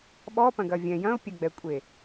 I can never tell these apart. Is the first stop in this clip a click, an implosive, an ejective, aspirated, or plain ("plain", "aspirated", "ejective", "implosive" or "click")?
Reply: implosive